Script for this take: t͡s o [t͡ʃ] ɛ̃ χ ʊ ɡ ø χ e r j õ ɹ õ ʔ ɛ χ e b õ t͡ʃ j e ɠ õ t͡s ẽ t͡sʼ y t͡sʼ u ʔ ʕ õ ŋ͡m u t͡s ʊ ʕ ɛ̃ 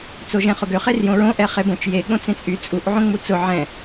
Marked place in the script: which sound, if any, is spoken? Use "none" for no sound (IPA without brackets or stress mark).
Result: ʒ